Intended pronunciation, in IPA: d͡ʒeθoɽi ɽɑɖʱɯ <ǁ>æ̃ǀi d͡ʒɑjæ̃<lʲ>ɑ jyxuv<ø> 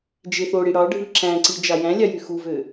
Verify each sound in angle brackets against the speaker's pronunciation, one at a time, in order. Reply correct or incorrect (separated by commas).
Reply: correct, correct, correct